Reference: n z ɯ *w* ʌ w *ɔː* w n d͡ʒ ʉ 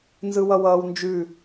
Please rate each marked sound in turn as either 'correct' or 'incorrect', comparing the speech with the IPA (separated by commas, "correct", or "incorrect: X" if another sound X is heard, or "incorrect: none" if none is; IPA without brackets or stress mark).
correct, incorrect: ʌː